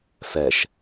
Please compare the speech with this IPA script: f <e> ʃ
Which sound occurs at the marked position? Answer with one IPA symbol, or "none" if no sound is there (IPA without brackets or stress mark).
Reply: ɛ